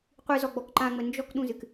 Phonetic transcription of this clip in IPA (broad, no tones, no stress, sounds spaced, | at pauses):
qʷ ɨ z ɔ ɡ͡b ɔ k ǃ ã ŋ͡m ə n d͡ʒ ɔ k ɗ ũ z ɨ k